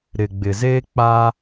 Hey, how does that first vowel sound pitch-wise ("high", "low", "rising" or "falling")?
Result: low